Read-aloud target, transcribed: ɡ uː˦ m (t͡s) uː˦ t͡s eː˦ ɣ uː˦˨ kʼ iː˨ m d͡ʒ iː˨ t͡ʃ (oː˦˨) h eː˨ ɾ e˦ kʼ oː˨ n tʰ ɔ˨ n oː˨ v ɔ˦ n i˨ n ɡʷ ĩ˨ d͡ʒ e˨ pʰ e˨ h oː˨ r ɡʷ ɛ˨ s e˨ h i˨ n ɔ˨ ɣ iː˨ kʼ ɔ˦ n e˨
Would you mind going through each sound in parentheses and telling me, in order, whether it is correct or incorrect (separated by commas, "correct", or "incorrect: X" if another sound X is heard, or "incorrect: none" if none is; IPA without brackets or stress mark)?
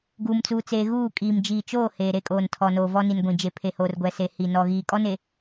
correct, correct